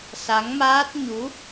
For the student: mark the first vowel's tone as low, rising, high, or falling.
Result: rising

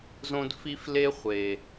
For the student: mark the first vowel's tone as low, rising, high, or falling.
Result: high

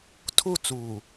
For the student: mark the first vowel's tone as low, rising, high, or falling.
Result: falling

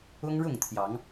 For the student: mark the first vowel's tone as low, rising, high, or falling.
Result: high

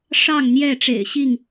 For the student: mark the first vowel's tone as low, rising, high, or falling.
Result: falling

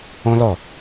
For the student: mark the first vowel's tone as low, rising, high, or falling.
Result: high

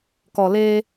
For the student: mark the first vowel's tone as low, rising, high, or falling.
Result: low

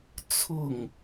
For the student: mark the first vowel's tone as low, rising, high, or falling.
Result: falling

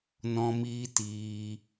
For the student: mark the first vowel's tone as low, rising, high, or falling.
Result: high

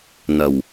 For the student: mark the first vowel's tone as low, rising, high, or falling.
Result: low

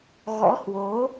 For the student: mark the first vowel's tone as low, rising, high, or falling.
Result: rising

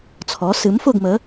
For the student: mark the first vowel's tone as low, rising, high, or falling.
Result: rising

